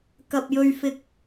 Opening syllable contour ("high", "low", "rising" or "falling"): low